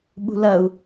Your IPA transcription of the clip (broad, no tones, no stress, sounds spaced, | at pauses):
ɓ ṳ l ɐ u̯